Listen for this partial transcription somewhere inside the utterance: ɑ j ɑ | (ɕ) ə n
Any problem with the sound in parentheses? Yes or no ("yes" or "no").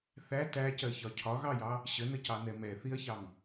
no